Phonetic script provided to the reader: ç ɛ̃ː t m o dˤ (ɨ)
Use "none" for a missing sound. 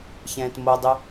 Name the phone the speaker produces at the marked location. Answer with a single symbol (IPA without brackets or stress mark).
ɨ